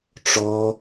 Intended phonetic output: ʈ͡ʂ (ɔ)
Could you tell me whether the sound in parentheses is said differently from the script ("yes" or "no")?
no